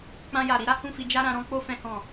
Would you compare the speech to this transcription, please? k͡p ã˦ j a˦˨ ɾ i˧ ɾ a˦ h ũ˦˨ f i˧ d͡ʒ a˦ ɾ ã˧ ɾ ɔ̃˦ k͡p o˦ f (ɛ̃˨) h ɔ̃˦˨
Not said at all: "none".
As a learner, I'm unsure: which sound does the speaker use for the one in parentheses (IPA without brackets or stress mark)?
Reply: ɛ̃˦